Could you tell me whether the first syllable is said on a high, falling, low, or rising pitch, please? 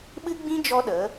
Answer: high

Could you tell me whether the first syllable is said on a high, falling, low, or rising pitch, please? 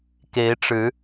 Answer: rising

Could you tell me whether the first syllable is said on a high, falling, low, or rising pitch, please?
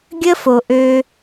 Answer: high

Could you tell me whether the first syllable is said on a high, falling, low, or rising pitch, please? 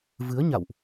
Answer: rising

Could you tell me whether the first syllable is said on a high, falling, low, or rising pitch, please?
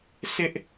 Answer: high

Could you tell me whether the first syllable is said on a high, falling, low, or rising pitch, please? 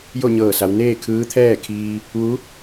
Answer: falling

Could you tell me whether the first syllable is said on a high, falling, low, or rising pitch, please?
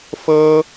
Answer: high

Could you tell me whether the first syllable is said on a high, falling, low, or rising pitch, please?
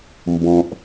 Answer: low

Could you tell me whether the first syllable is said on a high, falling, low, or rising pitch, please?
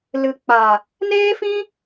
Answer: low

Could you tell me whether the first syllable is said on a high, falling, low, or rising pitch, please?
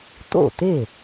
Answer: falling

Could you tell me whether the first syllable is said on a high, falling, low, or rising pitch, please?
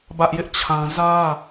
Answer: high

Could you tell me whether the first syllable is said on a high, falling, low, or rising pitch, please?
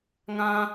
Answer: high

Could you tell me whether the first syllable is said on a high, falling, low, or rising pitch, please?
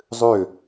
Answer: falling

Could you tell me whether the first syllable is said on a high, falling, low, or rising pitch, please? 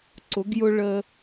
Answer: rising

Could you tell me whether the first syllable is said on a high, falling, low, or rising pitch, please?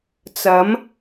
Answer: rising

